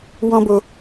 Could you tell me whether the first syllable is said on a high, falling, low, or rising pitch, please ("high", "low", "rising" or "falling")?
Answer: high